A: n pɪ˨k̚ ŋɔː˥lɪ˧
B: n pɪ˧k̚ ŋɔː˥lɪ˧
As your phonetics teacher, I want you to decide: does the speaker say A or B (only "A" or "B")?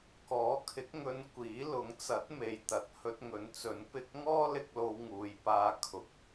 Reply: B